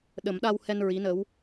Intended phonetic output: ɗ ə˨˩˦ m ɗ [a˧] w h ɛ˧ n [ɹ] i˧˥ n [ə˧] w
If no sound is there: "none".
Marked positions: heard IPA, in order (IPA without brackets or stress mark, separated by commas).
a˧, ɹ, ə˧˥